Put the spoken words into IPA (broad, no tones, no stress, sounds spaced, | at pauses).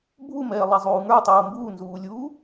bʱ u m ɛː lˠ ɛ zˤ uː ŋ ə˞ tˤ uː m b uː n z uː lʲ uː